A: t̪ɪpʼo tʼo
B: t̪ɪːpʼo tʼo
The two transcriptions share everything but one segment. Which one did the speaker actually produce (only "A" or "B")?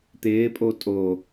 B